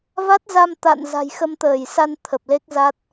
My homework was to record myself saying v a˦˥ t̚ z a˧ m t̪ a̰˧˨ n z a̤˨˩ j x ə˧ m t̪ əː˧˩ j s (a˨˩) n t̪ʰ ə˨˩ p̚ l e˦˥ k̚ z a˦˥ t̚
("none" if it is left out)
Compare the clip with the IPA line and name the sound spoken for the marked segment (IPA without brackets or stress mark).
a˧